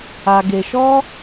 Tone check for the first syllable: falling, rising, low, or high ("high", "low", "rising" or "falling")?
low